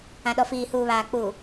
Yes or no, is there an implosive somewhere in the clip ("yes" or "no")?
yes